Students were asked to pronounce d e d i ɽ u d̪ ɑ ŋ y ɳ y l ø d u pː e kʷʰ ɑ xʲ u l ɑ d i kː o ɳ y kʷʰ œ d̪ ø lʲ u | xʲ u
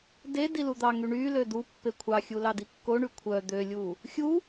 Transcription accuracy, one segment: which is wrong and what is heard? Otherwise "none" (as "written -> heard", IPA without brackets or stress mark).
ɽ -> l